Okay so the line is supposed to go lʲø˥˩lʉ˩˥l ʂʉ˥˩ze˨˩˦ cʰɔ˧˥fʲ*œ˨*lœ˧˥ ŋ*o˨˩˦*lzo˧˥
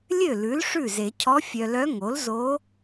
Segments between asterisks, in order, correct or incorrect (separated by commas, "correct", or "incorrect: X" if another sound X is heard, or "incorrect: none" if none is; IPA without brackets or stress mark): correct, incorrect: o˩˥